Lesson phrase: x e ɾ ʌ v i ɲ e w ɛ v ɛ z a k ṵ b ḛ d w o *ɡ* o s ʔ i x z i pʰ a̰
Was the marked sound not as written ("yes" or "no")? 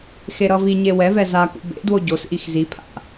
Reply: yes